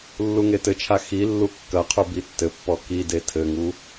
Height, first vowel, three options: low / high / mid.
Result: high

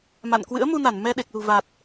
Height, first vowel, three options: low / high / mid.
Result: low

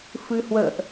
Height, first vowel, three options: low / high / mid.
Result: high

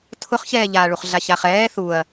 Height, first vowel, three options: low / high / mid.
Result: high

